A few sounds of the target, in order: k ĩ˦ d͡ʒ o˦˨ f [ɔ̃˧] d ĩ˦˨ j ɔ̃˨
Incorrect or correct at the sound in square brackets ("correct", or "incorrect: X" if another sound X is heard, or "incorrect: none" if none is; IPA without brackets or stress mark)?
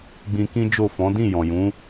incorrect: ɔ̃˨˦